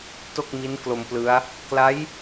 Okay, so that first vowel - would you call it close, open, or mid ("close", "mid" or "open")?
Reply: mid